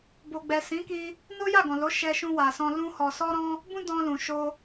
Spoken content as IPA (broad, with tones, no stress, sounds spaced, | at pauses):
b o˨ ɡ͡b ɛ˨ s ĩ˨˦ k i˧ | n o˦ j a˦˨ ɡ ɔ̃˨ l o˨˦ ʃ ɛ˧ ʃ ũ˧ w a˨ s ɔ̃˧ l ũ˦ h ɔ˧ s ɔ˦ ɾ ɔ̃˦ | b ũ˦ d ɔ̃˧ l ũ˨ ʃ o˧